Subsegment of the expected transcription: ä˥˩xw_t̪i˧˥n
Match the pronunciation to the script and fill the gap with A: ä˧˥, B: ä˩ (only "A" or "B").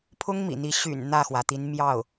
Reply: B